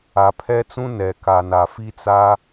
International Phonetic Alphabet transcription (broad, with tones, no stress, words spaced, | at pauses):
a˨pʰɛ˦t͡sũ˦ nɛ˨ka˨n a˨fi˦t͡sa˦